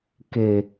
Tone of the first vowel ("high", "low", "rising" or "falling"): low